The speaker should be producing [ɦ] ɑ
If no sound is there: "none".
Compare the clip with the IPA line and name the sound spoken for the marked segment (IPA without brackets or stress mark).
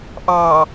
ʔ